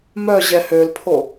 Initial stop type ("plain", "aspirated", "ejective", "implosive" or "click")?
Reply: aspirated